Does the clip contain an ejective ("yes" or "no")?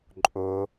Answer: yes